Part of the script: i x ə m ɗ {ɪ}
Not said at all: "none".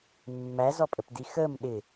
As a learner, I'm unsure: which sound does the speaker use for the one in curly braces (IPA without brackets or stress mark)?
ɪ